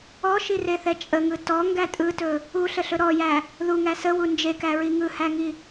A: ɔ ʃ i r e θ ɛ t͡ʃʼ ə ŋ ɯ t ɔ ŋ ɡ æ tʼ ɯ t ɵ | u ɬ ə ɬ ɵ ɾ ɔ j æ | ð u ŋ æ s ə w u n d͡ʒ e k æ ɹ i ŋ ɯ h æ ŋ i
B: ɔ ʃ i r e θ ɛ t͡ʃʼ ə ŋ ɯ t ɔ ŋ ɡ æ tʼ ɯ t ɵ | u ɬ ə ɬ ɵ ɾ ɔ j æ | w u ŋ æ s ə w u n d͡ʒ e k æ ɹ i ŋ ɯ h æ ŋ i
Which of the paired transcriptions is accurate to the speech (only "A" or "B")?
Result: A